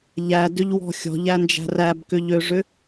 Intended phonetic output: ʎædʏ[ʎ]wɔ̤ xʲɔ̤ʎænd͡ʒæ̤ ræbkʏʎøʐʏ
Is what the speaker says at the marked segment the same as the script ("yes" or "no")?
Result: yes